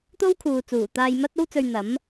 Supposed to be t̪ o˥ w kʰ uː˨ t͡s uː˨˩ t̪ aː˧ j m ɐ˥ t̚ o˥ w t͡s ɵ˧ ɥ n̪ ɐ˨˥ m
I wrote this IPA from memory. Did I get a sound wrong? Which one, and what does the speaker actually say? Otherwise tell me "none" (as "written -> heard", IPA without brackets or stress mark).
none